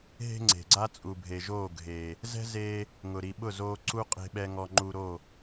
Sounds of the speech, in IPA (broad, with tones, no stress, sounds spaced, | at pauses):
ɦ e̤˦ ŋ͡ǀ e̤˨ ɡ͡ǀ a˦ t͡sʼ u˨ bʱ e˨ ʒ oː˦˨ ɡʱ eː˨ | z ɛ̤˦ z eː˧ | ŋ ʊ˨ ɾ i˨ ɓ ʊ˦˨ z oː˧ ǀ u˦ qʼ e̤˧ ɓ ɛ˧ ŋ ɔ˧ ŋ͡ǃ u˧ ɾ o˦˨